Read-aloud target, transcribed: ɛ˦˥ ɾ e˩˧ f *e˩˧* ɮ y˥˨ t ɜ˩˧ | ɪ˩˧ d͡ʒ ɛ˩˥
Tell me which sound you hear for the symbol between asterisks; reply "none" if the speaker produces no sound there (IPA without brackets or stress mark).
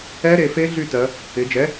e˦˥